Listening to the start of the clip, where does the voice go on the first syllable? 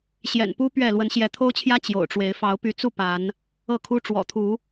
low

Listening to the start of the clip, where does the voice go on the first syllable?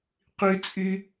high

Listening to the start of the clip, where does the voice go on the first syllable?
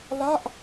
falling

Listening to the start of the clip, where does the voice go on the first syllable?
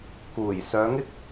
low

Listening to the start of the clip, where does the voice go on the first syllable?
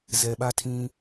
low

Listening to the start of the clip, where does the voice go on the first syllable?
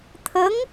rising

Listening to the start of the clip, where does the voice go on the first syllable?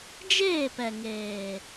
falling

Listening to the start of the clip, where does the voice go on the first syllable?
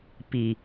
low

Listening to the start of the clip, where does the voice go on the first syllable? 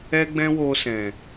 high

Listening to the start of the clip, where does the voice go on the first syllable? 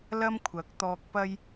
high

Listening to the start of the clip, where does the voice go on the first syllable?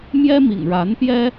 high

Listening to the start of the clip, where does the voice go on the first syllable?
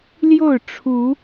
falling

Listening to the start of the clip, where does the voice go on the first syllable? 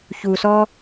low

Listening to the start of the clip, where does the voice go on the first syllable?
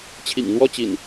low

